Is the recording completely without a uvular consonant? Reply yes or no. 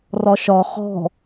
no